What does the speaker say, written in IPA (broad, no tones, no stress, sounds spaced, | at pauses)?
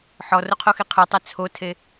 ħ ɔ r o qʰ o x e qʰ ɯ tˤ e t͡sʰ o tʰ e